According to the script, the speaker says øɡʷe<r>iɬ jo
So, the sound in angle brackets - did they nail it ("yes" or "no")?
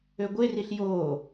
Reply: yes